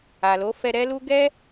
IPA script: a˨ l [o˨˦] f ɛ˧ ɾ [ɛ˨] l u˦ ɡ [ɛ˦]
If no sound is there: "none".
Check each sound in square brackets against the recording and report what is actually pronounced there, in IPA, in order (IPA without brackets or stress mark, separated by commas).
o˨˦, ɛ˦, ɛ˦